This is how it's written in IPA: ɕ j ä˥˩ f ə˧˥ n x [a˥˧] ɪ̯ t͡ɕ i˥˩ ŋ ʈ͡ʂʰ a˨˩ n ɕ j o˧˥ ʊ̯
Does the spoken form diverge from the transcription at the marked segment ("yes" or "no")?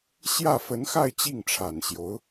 no